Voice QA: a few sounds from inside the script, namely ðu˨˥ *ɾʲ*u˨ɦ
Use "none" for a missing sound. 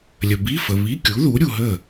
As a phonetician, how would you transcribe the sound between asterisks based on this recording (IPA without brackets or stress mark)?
ɾʲ